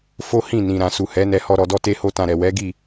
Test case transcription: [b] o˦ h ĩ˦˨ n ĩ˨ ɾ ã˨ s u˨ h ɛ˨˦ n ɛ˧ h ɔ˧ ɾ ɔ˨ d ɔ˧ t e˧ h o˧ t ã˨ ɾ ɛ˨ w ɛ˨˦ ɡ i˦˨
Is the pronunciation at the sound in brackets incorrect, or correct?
incorrect